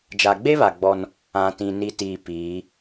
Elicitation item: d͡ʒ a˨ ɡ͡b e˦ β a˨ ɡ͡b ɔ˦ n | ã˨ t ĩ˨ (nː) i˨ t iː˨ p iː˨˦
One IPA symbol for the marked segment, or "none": n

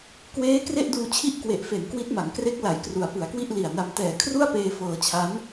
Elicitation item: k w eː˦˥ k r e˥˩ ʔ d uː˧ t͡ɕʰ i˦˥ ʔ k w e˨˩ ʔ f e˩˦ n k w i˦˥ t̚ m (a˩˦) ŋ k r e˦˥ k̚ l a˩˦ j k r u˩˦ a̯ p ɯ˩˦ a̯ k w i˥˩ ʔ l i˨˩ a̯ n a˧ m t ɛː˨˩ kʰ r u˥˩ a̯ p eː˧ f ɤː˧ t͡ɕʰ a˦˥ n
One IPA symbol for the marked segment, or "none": a˩˦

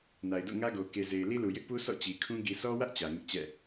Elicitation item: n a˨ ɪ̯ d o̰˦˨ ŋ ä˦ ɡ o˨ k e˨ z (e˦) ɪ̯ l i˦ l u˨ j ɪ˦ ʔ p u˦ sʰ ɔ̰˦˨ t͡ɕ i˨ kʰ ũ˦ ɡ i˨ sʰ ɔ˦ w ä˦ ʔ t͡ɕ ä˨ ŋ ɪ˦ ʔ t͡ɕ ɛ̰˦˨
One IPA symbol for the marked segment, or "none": e˨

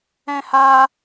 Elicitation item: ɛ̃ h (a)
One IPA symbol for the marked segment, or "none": a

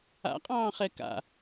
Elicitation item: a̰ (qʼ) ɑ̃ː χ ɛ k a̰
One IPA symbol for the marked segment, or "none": qʼ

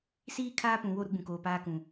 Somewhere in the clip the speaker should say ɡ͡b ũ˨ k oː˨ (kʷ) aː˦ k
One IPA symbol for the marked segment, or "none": p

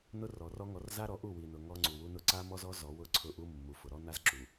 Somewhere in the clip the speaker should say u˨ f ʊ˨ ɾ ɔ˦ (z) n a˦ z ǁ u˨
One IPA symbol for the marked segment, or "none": none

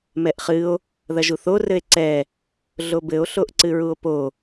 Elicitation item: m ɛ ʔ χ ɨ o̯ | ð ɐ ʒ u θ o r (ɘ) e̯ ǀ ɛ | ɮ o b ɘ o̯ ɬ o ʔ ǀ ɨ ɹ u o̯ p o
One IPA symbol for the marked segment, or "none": ɘ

